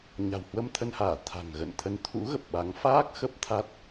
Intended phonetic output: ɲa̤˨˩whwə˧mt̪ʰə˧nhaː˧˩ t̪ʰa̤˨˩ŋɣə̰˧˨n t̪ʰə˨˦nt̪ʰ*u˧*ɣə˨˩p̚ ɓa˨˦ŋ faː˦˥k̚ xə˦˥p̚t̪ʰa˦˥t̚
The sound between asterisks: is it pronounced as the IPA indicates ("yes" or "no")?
no